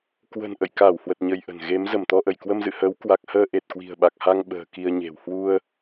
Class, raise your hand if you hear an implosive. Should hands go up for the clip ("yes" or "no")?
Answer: yes